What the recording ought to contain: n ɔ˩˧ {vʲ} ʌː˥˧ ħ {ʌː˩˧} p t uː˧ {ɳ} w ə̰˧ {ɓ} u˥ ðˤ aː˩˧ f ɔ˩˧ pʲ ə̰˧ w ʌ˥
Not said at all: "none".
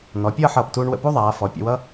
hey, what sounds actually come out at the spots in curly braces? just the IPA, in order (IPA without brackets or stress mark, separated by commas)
pʲ, ʌː˧˩, ɳ, p